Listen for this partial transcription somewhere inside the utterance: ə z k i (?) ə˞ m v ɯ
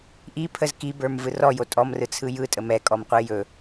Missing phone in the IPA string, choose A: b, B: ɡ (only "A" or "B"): A